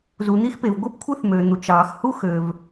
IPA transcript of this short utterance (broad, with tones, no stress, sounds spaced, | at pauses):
z u˩ n̪ i˥ x p e˩ v ɡʷ ɯ˥ p kʷʰ ɯ˥ θ m ø˩ n̪ u˩ t͡ʃ ɑː˩ x h u˥ x ø˩ v